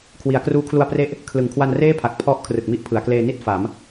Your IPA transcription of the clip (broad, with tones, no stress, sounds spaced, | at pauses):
kʰ w i˩˦ a̯ k r uː˦˥ kʰ l u˧ a̯ p r e˦˥ ʔ | kʰ l ɯ˨˩ ŋ kʰ w a˧ n r eː˥˩ pʰ a˨˩ k̚ pʰ ɔ˥˩ ʔ kʰ r ɯ˨˩ k̚ m i˦˥ ʔ pʰ ɯ˩˦ a̯ k l eː˧ n i˥˩ t̚ f a˩˦ m